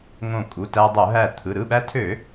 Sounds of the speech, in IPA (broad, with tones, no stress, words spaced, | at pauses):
ŋõ˧˩kʼu˩˧˩ tæ˧ dˤo˧˩˧ɦæ˧˩t̪ʰɯ˩˧˩ ɾɯ˩˧˩ɓæ˧tʰø˧˩˧